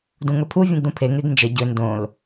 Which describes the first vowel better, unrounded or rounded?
rounded